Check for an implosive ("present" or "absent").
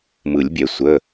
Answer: absent